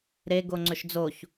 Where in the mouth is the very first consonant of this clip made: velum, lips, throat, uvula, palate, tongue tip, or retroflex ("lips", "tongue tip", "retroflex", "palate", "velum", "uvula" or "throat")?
tongue tip